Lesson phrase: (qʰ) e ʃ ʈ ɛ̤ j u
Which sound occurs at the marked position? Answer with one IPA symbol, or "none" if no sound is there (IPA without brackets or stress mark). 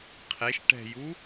qʰ